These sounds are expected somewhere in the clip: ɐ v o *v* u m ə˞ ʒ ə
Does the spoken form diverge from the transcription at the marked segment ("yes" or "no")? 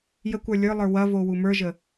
yes